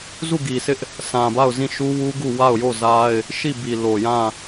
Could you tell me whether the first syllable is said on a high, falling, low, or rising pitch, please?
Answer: falling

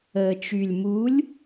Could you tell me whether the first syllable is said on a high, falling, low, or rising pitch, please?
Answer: low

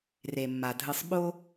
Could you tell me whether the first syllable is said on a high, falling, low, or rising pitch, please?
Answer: low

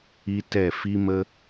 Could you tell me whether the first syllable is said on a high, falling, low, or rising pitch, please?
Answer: high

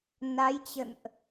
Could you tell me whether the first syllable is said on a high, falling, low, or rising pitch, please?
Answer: rising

